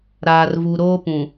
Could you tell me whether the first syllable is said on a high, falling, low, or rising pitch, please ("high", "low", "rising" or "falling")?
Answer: low